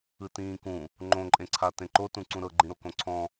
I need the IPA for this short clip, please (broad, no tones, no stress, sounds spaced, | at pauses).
ɯ t ĩː k ũ | ŋ͡ǃ õ ǃʼ ẽ ǀʰ a t ẽ ǃ o t ũ ǀ ũ ɾ ɤ ɡ͡ǃ ĩ ɾ o k õ ǀʰ ɔ̃